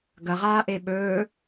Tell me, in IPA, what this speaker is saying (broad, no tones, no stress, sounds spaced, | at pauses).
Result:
ɡ ɐ ʁ aː ʔ e ɓ ɵː